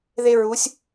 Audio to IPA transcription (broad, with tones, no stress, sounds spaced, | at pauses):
ð e˥ ɹ u˧˥ sʲ